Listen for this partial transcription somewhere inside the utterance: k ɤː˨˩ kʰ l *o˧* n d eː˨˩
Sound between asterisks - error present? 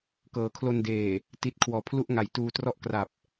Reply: no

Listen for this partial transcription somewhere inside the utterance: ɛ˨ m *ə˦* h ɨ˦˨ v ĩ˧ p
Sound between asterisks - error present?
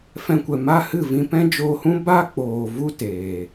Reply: yes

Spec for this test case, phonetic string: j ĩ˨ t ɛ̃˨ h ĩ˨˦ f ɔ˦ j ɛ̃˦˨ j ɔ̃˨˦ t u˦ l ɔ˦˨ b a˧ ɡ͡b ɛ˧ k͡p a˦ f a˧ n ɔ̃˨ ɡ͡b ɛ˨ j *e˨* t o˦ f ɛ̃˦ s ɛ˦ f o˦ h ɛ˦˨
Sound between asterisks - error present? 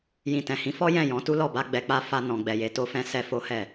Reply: yes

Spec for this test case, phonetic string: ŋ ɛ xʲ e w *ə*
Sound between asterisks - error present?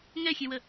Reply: no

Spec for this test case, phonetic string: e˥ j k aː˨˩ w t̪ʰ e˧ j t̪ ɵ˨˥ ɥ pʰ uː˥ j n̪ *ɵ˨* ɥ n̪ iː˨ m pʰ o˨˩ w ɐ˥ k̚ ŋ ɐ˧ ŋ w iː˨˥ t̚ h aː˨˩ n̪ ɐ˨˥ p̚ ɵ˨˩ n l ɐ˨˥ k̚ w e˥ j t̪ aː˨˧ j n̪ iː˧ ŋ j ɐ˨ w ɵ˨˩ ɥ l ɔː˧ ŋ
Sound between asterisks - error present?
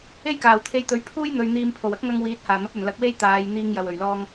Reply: no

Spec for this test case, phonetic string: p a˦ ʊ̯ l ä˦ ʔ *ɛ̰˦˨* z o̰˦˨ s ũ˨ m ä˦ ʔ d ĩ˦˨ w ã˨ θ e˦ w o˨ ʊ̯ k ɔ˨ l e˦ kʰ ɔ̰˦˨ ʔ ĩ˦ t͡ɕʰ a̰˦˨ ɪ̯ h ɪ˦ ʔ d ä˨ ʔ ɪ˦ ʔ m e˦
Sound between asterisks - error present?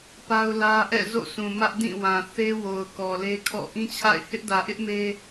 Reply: no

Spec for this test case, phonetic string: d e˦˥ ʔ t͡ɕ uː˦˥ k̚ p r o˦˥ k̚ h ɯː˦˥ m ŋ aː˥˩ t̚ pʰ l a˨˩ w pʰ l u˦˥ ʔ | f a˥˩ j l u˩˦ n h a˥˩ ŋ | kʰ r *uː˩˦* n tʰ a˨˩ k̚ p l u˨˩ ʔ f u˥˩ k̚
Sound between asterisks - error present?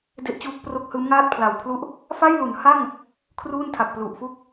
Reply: yes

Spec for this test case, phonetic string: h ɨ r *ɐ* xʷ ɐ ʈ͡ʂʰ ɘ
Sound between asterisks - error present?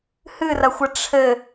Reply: no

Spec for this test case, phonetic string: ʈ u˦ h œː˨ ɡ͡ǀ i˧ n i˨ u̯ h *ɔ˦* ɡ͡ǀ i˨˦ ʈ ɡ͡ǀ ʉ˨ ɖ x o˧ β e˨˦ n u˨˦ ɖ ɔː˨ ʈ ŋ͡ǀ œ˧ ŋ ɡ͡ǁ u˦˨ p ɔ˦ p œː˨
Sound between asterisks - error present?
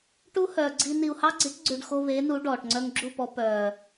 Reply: yes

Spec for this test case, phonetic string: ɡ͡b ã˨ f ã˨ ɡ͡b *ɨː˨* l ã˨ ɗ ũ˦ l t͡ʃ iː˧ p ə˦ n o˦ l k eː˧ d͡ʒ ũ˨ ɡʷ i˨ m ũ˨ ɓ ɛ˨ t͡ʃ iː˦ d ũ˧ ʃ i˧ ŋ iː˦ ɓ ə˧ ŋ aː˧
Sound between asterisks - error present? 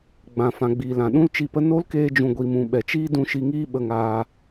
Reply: yes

